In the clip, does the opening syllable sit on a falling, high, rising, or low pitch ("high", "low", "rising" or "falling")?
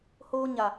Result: high